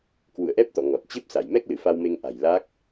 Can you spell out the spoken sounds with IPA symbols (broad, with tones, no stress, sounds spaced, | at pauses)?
k w ṵ˧˨ ə̯ ʔ ɛ˦˥ p̚ t̪ ɔ̰˧˨ ŋ ɔ˨˩ t̚ t͡ɕ e˦˥ p̚ s a˧˩ j m ɛ˦˥ k̚ l ɨ˧˩ f a˧ w m e˧ ŋ ʔ a̤˨˩ j l a˦˥ k̚